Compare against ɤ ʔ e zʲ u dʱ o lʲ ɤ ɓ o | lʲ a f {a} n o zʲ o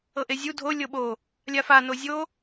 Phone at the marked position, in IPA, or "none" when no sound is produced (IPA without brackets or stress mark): a